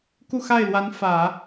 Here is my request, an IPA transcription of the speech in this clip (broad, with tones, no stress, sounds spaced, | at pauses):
k u˥˧ x a˥˩ ɪ̯ l w a˧˥ n f ä˨˩˦